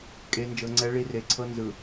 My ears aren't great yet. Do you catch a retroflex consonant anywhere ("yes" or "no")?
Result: yes